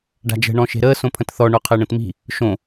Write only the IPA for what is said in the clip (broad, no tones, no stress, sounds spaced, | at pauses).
ɖ a̤ d͡ʒ ə̤ ɳ ɔ̃ ʃ e̤ ɾ əː s õ pʰ ə̃ t θ ɔ ɳ o qʰ əː ɳ ə̃ t m i̤ | ʃ õ